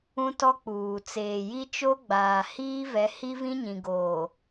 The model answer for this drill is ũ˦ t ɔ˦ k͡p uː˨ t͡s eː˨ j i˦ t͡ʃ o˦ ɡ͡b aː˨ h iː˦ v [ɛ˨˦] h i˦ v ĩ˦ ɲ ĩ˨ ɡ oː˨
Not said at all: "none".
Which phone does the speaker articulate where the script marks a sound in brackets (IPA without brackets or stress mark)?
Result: ɛ˨˦